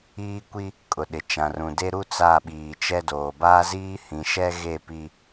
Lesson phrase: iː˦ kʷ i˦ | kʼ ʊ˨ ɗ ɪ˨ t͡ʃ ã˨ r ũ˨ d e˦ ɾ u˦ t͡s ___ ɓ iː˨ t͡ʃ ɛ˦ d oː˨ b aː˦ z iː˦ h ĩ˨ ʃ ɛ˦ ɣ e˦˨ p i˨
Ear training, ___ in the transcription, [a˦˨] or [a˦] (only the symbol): a˦˨